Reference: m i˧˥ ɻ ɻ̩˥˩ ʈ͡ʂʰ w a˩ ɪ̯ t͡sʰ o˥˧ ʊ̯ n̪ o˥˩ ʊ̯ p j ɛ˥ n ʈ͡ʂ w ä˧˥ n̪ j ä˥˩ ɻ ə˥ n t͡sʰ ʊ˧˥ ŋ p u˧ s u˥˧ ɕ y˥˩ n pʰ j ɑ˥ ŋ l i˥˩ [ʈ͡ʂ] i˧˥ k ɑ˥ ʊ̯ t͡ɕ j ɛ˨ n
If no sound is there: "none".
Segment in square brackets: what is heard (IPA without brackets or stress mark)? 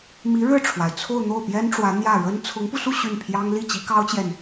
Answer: t͡ɕ